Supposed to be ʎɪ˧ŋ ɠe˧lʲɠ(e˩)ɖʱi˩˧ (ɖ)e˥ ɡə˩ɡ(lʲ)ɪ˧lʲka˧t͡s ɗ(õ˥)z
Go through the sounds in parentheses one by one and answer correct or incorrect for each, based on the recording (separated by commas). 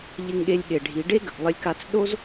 correct, correct, incorrect, incorrect